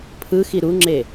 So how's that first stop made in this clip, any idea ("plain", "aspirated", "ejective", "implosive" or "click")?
aspirated